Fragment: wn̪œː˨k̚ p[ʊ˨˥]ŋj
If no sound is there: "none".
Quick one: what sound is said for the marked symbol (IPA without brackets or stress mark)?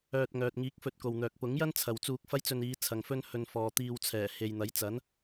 ʊ˨˥